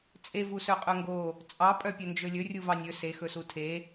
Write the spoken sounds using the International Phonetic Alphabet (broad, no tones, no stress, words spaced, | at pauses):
t͡sʼe vusœqʼœŋɡo | t͡sʼɑ pʼœpʲɵnd͡ʒɵlʲɵ rʲuvɑnʲɵ se xɵsutʰe